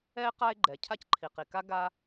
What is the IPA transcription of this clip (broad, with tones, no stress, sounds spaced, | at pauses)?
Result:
ɛ˥ e̯ q a˥ e̯ ɡ͡ǃ ɛ˩ cʰ a˥ c ǃʰ i˩ q i˩ k a˥ ɡ a˥